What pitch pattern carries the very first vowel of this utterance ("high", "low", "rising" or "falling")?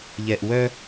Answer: low